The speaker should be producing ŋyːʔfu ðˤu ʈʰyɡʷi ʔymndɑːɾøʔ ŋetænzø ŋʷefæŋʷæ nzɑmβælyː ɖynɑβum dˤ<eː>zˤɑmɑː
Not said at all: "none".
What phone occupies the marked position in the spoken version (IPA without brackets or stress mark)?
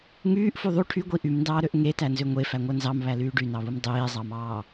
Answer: eː